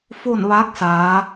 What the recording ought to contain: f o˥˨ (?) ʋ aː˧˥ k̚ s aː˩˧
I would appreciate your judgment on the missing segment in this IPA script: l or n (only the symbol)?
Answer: n